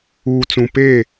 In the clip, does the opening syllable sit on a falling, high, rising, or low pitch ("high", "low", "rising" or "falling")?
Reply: low